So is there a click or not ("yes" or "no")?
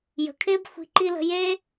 yes